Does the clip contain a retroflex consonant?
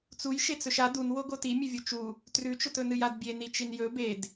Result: no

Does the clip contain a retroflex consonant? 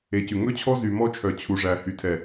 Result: yes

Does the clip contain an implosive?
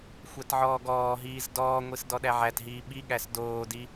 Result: yes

